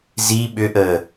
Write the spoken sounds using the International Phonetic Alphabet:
z i ɓ ʏ ʔ əː

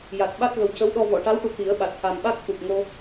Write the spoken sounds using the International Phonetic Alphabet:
j a˨˩ t̚ ɓ a˦˥ t̚ ɣ ə˨˩ w c ə˧˥ w ɗ ɔ˧ v ɔ˨˩˨ ʈ a˧˥ w ʈ u˨˩ t̪ i˨˩˦ ə̯ ɓ a˨˩ t̚ h a˨˩ m ɓ a˦˥ k̚ t̪ u˨˩ k̚ ŋ o˧

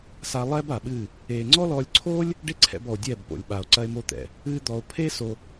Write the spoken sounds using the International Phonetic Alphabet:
s a˧ lˠ ɛː˦ b a˨ ɓ ɨː˦˨ | eː˨ ŋ͡ǀ ɔ˦ l ɔː˧ lʲ ǀʰ oː˦ lʲ | ɖ e˦ ǀʰ ɛ̰˧ b ɔ˨ o̯ dʲ ɛː˦˨ b p o̰˨ lʲ ɓ a˨ o̯ ǀ ɐ˦ e̯ m o˦ t̪ ɛ̰˨ | ɨː˦ d̪ ɔ˧ o̯ pʰ eː˦ s o˧

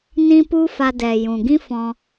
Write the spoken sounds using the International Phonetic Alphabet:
n ĩ˦ p u˦ f a˧ d ɛ˨ j ũ˨ ɡ ĩ˦ f ɔ̃˧

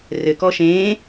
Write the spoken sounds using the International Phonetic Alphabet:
r ɘ k ɔ ʃ ẽː

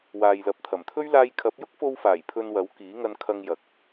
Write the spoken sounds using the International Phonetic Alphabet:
w aː˨ j l ɐ˨ p̚ t̪ʰ ɐ˨˩ m t̪ʰ ɵ˥ ɥ l aː˧ j kʰ ɐ˨˥ p̚ j ʊ˥ k̚ f o˧ w f aː˨˩ j pʰ ɵ˧ n w ɐ˨˥ w k iː˨˥ ŋ ɐ˧ n kʰ ɐ˧ ŋ j ɐ˨ k̚

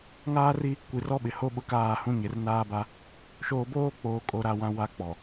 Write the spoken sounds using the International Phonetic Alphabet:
ŋ aː˦ r i˦ | kʷ i˨ r ɔ˦ ɓ ɪ˨ h o˦ ɓ ʊ˦ k aː˦˨ h ũ˦ ɲ ɪ˨ r n aː˦ b a˦ | ʃ oː˦ b oː˦ k͡p oː˨ kʼ o˨ ɾ a˨ w ã˦ w a˦ k͡p ɔ˨

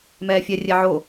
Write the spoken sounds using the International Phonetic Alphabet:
m ɛː fʲ ɛ rʲ ɛ ʕ o

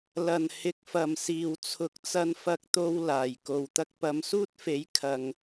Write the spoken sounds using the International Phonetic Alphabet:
l ɐ˨˩ n h ɪ˨˥ k̚ f ɐ˨˩ m s iː˨˩ w t͡sʰ ʊ˨˥ k̚ t͡s ɐ˧ n f ɐ˨ k̚ t̪ o˨ w l aː˨˩ j k o˨ w t̪ ɐ˧ k̚ p ɐ˨˧ m s uː˥ t̚ f e˨˥ j kʰ ɐ˨ ŋ

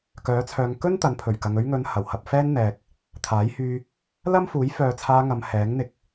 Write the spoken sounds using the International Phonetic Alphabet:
k œː˨˥ t͡sʰ œː˨ ŋ k ɵ˥ n t̪ ɐ˨˥ n pʰ ɵ˨˩ ɥ k ɐ˨ ŋ ɵ˧ ɥ ŋ ɵ˨˧ n h ɐ˨˩ w h ɐ˨ p̚ f ɛː˥ n n̪ ɛː˨ k̚ | t̪ʰ aː˨˥ j h yː˧ | l ɐ˥ m f uː˨˥ j f œː˨ t͡sʰ aː˧ ŋ ɐ˨ m h ɛː˨˥ ŋ n̪ ɪ˧ k̚

